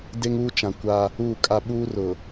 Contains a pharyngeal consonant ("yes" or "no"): no